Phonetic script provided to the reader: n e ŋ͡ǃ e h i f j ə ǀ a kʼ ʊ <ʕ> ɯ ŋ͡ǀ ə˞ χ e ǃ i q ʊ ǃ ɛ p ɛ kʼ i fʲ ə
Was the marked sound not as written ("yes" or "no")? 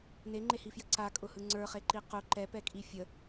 yes